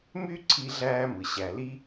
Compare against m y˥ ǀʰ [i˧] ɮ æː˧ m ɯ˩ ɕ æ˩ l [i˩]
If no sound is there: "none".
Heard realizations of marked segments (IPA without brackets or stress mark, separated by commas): i˧, i˥